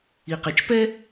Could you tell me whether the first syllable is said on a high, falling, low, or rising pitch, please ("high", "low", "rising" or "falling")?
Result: low